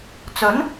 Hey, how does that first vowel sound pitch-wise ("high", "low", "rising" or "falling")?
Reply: rising